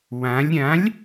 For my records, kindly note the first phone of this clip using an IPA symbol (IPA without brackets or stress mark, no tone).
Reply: w